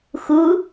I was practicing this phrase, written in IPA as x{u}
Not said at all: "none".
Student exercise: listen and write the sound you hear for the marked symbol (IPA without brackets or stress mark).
u